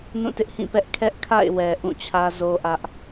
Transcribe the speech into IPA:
n ũ˦˨ t ɪ˦ ʔ h ĩ˦˨ p ɛ˦ ʔ kʰ ɛ˦ ʔ kʰ a̰˦˨ ɪ̯ w ɛ˨ ʔ ũ˦˨ t͡ɕʰ ä˦ z o˦ ʔ ä˦ ʔ

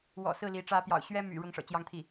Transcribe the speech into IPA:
w ɔ̰˨˩ s ɹ̩˥˩ l i˧˥ ʈ͡ʂ ä˧˥ p j ɑ̰˨˩ ʊ̯ ɕ ɥ ɛ˥ m y̰˨˩ ɻ ʊ˥ ŋ ʂ ɤ̰˨˩ t͡ɕ j ɑ˥ ŋ t̪ʰ i˥˩

